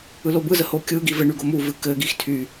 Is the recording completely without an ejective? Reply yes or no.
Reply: yes